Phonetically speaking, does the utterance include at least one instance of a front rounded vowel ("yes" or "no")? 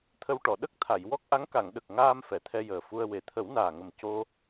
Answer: no